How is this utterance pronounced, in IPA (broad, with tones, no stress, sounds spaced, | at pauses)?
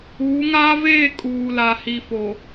uː˨˦ ŋ aː˦ v eː˦˨ kʼ uː˨ l a˨ h i˨ f o˨